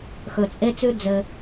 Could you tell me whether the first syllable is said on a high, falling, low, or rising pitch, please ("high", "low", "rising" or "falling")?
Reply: low